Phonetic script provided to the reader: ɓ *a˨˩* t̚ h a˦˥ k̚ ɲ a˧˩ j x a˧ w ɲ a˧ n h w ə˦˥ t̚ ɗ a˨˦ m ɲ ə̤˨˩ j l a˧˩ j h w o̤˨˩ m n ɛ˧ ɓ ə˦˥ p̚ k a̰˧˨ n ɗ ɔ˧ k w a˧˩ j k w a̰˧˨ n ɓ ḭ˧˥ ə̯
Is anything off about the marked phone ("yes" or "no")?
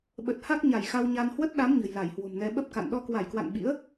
yes